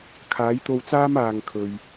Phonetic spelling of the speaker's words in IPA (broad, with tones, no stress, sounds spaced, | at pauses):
kʰ aː˨˥ j t̪ o˧ w t͡s aː˥ m aː˨ ŋ kʰ ɵ˨ ɥ